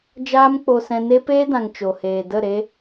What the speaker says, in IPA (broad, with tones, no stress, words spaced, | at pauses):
d͡ʒaː˦mk͡po˧sɛ̃˧ ne˦ peː˦dã˨ŋ t͡ʃo˨heː˨ də˦˨ɾe˦